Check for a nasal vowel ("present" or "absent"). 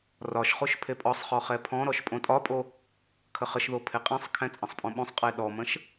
present